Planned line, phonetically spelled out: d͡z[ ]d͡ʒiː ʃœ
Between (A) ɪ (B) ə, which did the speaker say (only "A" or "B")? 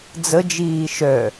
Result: B